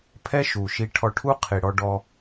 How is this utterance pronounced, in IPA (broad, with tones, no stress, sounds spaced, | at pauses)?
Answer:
pʰ ɛ˦ ʃ u˨ ʃ i˧ ʈʰ ɔ˧ ʈʰ u˦ qʰ i˨ ɽ ɔ˧ ɖ ɔ˧